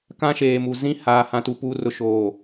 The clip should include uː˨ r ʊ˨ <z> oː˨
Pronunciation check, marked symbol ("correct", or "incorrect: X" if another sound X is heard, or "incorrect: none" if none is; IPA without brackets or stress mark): incorrect: ʃ